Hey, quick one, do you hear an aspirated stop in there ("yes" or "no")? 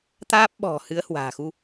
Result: no